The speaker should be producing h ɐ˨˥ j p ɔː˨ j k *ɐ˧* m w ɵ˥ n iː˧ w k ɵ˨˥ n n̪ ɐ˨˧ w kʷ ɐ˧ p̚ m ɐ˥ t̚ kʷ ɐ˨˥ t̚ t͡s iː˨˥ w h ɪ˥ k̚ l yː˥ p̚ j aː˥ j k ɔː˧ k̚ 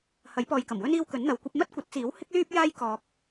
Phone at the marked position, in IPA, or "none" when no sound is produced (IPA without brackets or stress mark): ɐ˨˩